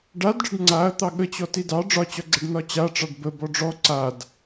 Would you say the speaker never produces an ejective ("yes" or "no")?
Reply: yes